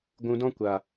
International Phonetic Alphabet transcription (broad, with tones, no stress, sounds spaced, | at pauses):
ɡʷ ũ˧ d ɔ̃˦ kʷ a˨